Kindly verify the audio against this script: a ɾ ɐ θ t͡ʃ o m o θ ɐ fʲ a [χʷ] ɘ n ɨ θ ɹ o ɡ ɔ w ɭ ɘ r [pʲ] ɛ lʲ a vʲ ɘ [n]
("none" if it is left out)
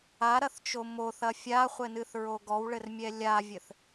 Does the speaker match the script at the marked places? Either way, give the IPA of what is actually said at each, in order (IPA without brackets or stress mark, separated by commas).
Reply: χʷ, mʲ, θ